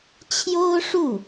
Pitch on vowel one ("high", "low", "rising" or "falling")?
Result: high